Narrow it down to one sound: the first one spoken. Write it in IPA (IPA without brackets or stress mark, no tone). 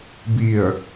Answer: b